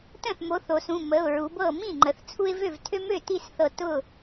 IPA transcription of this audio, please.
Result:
t ə̃˥˩ θ m o˨˥ θ o˩˧ s ũ˩˧˩ m ə˩˧˩ ʊ̯ ɹ u˩˧ b ɤ˥˩ m ĩ˥˩ ŋ͡ǃ ə˩˧ θ t͡sʰ u˦ ɪ̯ v ø˥˩ v tʰ ø˦ m ø˥˩ t i˥˩ s θ ɤ˧˩ t ʊ˥˩

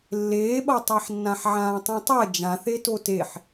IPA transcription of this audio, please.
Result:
lː eː ɓ ʌ tˤ a ħ nː ã ħ ʕ ãː tˤ ĩ tˤ ɛ d͡ʒ ã θ e t o t e ħ

